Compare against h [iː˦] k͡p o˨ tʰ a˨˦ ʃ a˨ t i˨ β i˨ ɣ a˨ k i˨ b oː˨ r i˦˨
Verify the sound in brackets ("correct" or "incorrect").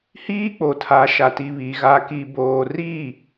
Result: correct